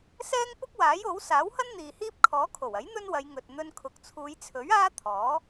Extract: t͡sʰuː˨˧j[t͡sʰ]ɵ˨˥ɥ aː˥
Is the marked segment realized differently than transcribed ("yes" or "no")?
no